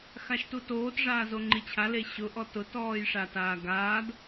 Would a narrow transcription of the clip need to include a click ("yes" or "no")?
yes